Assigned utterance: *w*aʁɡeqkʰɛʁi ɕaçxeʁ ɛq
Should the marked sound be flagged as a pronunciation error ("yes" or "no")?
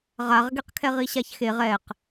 yes